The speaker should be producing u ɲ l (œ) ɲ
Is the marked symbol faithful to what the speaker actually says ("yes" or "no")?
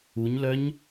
yes